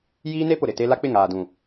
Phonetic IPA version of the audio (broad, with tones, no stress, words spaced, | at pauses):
jiː˦ne˦pʊ˨ ɾɪ˨te˦ la˦k͡pɪ˦˨ŋaː˨dũ˨